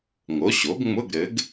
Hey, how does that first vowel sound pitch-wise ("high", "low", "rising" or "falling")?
rising